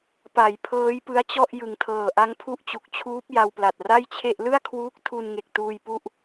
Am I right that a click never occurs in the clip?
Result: yes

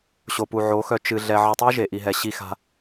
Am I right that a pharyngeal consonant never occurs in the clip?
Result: no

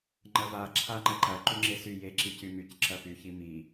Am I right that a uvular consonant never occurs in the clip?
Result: yes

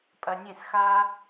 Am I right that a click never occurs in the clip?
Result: yes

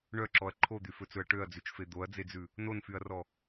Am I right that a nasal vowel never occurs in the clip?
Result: yes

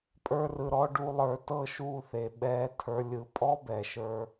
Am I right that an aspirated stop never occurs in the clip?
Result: no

